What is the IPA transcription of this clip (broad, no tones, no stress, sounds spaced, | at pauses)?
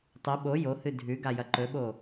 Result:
tˤ ɨ ɓ o j o h ɨ dʱ ʉ ɡ a j ɐ ǃ ɵ ɓ o